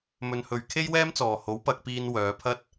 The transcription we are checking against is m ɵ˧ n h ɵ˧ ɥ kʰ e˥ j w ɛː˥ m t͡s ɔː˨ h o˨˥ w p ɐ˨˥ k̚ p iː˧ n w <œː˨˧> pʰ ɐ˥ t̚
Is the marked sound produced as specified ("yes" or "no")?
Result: yes